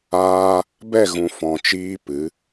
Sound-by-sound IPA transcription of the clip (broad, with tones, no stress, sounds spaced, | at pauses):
aː˧ | b ɛ˦˨ ɣ ũ˨ f ɔ̃˨ t͡ʃ iː˧ p ɨ˨˦